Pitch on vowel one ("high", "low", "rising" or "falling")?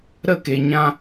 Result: falling